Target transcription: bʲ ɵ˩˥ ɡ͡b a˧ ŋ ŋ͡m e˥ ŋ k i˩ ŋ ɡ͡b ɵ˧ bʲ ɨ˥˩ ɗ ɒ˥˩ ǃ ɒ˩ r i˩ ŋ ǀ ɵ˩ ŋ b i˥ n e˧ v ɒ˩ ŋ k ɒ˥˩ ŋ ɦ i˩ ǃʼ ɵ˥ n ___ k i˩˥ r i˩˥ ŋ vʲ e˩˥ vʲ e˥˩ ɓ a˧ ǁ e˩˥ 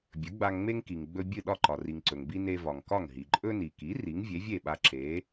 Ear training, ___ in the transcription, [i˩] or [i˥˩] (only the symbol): i˩